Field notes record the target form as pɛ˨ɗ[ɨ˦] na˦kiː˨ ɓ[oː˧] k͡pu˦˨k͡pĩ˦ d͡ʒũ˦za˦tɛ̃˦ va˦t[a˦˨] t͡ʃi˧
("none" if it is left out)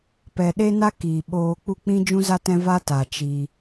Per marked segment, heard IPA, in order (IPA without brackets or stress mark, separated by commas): e˦, oː˧, a˨